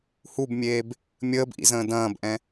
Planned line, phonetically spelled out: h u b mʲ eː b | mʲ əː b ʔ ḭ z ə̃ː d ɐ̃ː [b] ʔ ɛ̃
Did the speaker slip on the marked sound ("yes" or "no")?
no